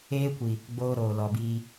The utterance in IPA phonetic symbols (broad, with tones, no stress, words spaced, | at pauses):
eː˦kʷi˨ | ɡ͡boː˦ɾoː˨lɔ˨biː˧